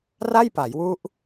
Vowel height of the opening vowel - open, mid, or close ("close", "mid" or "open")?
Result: open